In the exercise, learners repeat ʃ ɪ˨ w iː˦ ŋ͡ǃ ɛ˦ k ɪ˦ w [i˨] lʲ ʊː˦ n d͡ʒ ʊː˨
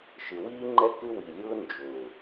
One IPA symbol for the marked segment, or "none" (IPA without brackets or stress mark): i˨